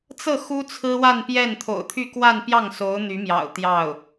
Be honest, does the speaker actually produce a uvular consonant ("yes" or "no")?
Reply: no